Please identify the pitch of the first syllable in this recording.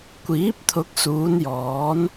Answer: rising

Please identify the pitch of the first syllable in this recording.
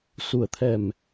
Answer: low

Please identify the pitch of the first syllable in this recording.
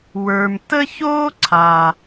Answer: low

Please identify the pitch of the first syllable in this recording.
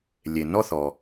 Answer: low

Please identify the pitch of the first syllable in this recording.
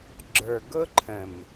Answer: low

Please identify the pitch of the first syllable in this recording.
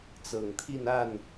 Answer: low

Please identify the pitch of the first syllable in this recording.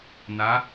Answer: rising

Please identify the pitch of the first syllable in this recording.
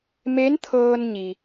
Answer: rising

